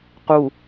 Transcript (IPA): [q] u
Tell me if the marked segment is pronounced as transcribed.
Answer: yes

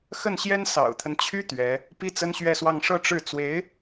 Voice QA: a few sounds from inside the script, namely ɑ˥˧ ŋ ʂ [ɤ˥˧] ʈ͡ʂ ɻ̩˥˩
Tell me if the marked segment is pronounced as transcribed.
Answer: yes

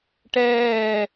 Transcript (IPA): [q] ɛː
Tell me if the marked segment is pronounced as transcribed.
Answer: no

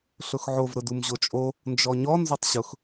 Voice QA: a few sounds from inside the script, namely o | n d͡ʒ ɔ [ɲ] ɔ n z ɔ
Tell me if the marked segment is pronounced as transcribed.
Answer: yes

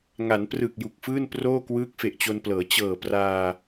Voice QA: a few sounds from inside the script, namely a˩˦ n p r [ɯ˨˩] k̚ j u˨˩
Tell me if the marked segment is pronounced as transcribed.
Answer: yes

